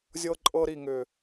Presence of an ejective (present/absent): present